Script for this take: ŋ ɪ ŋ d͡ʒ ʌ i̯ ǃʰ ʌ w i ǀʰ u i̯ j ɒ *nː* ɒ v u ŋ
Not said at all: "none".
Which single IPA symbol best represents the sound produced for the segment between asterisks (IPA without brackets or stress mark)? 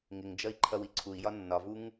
nː